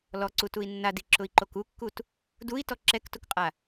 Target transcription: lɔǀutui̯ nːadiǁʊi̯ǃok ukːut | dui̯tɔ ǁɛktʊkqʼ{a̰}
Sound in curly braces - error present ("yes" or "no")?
yes